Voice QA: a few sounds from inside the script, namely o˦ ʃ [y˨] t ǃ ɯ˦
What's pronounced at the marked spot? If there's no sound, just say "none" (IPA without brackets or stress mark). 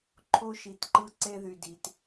i˨